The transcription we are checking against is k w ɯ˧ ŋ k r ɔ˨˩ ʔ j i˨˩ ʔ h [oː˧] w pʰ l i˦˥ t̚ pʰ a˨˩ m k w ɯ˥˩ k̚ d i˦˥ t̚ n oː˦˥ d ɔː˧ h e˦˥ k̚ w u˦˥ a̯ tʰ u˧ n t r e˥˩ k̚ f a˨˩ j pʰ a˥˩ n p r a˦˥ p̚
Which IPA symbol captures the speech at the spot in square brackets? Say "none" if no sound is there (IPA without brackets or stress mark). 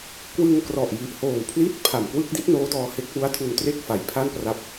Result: oː˨˩